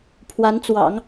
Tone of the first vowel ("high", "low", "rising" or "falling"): rising